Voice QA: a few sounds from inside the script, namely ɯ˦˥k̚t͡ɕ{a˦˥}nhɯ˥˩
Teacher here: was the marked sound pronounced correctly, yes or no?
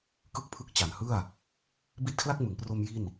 no